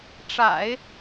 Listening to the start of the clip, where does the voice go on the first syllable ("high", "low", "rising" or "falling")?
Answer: low